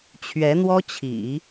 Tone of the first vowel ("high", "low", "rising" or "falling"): rising